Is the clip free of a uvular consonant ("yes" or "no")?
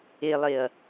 yes